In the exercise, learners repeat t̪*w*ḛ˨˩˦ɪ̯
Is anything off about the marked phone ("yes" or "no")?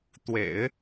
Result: no